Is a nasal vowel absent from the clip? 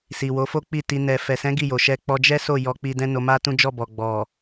no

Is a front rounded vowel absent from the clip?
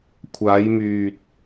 no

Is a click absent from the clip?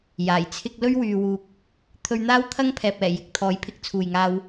yes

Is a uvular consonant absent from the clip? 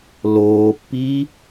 yes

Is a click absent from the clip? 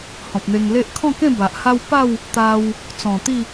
yes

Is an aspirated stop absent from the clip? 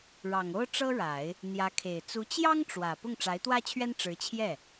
no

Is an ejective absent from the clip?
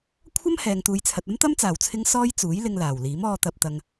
yes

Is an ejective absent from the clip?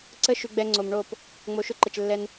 yes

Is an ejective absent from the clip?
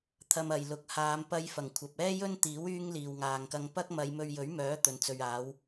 yes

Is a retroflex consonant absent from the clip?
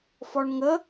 no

